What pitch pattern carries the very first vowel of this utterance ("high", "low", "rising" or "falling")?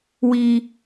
high